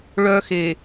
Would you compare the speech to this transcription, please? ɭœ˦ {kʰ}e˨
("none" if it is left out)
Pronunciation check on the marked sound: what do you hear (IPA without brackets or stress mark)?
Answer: x